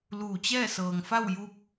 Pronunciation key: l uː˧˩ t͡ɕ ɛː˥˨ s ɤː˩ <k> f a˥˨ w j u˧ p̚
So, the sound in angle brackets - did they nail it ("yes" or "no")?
no